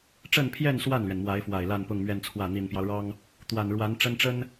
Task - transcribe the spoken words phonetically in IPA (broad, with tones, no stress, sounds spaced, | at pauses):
ʈ͡ʂ ə˥˧ n pʰ j ɛ˥˧ n s w a˥˩ n l ɥ ɛ˩ n m w a˧˥ ɪ̯ f w a˨˩ ɪ̯ l a˥˧ n p ʊ˥˧ ŋ m ɥ ɛ˥˧ n t͡sʰ w ä˥˩ n̪ i˨˩ n p j ɑ˦ ʊ̯ ɻ ɑ˥ ŋ | t̪ w a˨˩ n ɻ w a˧˥ n ʈ͡ʂ ə˥ n ʈ͡ʂ ə˥ n